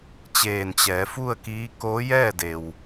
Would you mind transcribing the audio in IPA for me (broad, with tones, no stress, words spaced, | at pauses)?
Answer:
t͡ɕeː˧˩nt͡ɕɛː˩˧fu˥˨ə̯kiː˧˥ koː˧˥jɛː˥˨de˩w